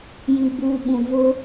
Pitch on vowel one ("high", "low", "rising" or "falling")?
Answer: low